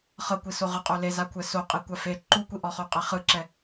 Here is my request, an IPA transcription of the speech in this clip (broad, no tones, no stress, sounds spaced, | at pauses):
χ ɤ kʷ i s o ʁ ɯ qʼ o l e z a kʷʰ ɛ s o qʼ i kʷ a f e ǃ u kʷ i ʔ ɔ χ o qʼ ɛ χ ɯ ǁ ɛ